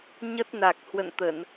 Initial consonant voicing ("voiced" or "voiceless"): voiced